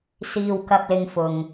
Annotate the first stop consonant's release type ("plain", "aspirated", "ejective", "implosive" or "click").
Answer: plain